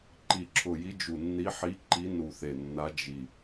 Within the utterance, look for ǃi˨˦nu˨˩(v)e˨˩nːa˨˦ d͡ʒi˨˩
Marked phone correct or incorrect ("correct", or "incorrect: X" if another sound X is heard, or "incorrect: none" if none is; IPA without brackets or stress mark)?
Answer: incorrect: θ